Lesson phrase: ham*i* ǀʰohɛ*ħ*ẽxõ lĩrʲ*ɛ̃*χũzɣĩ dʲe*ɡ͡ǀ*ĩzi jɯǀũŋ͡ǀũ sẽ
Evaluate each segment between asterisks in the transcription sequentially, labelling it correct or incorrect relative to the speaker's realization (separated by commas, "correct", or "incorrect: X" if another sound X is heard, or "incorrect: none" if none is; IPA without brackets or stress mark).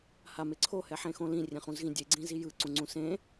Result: incorrect: e, correct, incorrect: ẽ, correct